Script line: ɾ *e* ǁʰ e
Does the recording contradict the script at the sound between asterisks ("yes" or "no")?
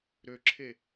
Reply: yes